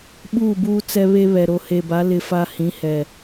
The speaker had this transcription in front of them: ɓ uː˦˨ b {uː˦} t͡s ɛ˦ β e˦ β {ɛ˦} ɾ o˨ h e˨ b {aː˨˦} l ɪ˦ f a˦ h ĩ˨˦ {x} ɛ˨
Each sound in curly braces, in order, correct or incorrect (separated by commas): correct, incorrect, incorrect, incorrect